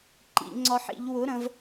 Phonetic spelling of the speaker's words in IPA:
ǃ ḭ˨˩˦ ŋ͡ǀ ɒ˦ ħ ḭ˨˥ ʎ w ʊ˨˥ ɾ ə̃˨˥ v

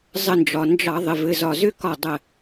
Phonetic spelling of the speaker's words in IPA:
zˤ ə˧˩ n d͡ʒ ɒ˩ n d͡ʒ ɑ˧˩˧ ðˤ ɘ˩˧˩ v ɘ˩˧˩ z ɒ˧˩ z ʏ˥˨ k ɒ˧˩ dˤ ə˧˩

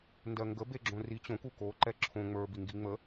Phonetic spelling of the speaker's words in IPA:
n d ɜ ŋ ɡ ə b e ɡ͡ǁ õ r i t͡ɕ õ k u k o ǃ ɛ ǁʰ õ ŋ͡m ə˞ b i ŋ ɡ i ŋ͡m ə

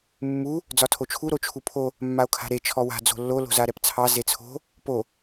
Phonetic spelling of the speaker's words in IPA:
mː u | d͡z ɒ tʰ o t͡ʃʰ u ɾ o t͡ʃʰ u pʰ o | mː a o̯ kʰ a̤ ɾ e t͡ʃʰ ɔ w a̤ d͡z o̤ lː o l o̤ z a ɾ ɛ p t͡sʰ ɑ z e t͡sʰ o̤ | p o

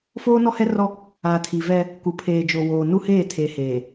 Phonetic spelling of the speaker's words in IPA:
f oː˦ n ɔ˦ h ɛ˦ r ɔ˦ | a˨ tʰ i˨ v ɛ˦ | k u˨ pʰ eː˨ d͡ʒ o˨ w oː˨ n u˦ h eː˦˨ tʰ e˨ h eː˨

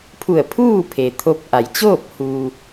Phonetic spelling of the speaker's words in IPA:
pʰ u˧˩ ə̯ pʰ uː˥˨ pʰ e˩ t̪ʰ o˧ p̚ ʔ a˩˧ j t͡ɕ oː˥˨ p̚ h uː˩

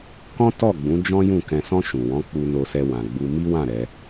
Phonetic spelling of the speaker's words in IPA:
k ɔ̃˦ t ɔ˦˨ ɡ͡b ũ˨˦ d͡ʒ ɔ̃˦ j ũ˦˨ k ɛ̃˨ s ɔ̃˧ ʃ ũ˨ w ɔ̃˨˦ k͡p u˧ n o˧ s ɛ˧ w ã˨ ɡ͡b u˧ m i˦ w ã˦˨ ɾ ɛ˨˦

